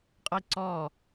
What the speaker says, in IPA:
qʼ ʌ i̯ ǀ ɔː

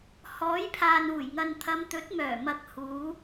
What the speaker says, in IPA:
h ɔː˨˥ j pʰ aː˨ n uː˨˩ j ŋ ɐ˨ n t̪ʰ ɐ˨˧ m t̪ ɵ˨˥ t̚ m œː˨˩ m ɐ˨ k̚ h uː˨˧

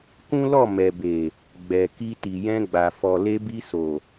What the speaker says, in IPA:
k ũ˦ l ɔ˦˨ m ɛ˨ b e˨ | ɡ͡b ɛ˨ k i˧ t i˨ j ɛ̃˧ ɡ͡b a˨ f ɔ˨ l e˧ b i˧ s o˨

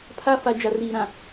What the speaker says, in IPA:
pʰ a˦ f a˨ d͡ʒ a˨ r iː˨ ɾ ã˨

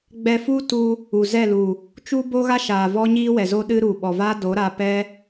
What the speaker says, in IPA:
ɡ͡b ɛ˧ f u˦ t u˧ | u˨ z ɛ˦˨ l u˨ | t͡ʃ u˦ b o˦ ɣ a˦ ʃ aː˨ v ɔ˦ ɲ iː˦ w ɛ˨ z o˦ ɗ ɨ˦ ɾ u˨ ɓ ɔ˨ v a˦ d o˨˦ ɾ a˧ p ɛ˦

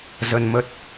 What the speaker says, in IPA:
z ə˧ n m ə˦˥ t̚

